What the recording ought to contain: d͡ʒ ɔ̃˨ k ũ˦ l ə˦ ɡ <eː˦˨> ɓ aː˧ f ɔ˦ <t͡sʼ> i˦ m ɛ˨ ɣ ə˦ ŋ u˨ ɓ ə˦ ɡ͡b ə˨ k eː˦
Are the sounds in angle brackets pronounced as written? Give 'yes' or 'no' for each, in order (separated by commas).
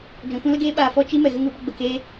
no, no